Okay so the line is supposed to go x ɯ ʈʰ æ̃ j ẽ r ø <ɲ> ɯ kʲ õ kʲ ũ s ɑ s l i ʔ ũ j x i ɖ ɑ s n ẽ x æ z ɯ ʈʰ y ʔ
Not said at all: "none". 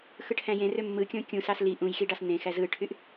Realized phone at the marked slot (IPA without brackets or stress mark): mː